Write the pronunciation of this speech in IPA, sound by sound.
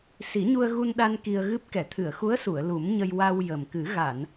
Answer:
s i˨˩˦ ɲ u˧ ə̯ ɣ u˧ n ɗ a˧ n k i˧ ə̯ ɣ ɨ˦˥ p̚ k ɛ˨˩˨ t̪ʰ ɨ˨˩˨ ə̯ x u˧˥ ə̯ s u˨˩˨ ə̯ l u˨˩˦ m ɲ ə˧ j w a˧ w j ə˨˩ m k ɨ˨˩˦ ɣ a˨˩˨ n

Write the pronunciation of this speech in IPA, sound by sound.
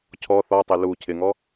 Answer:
cʰ ɔ θ ɔ tˤ e l u cʰ ɪ ŋ ɔ

